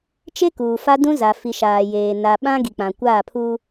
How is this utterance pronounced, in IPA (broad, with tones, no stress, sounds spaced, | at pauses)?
t͡ʃ e˦ k uː˨ f a˦ d ũ˦ z a˨ f i˨ ʃ aː˨ j eː˨ n a˨ ɓ ã˦ ɡ i˨ k͡p ã˨ kʷ aː˦˨ pʰ uː˦